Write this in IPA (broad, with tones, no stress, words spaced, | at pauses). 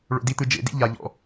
ɭo̰˧di˦t̪ɯ˧ d͡ʒḛ˨˦dḭ˦ ʎa˧ʎɔ̰˧